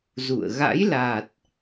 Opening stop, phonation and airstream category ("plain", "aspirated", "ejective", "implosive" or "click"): plain